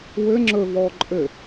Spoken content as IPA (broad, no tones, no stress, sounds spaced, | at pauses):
w ɘ ŋ͡ǁ ɵ v ɔː ǃʼ ɘ